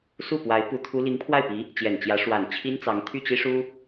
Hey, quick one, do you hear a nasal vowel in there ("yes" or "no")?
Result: no